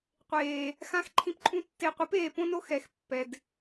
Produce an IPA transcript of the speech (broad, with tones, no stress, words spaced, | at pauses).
qʷeː˨ | xã˧xǃʰĩ˧pǃʼũ˧ tːe˨qʷɯ˨˦p eː˨põ˦no˦ xɛ˨xpːɛ˨d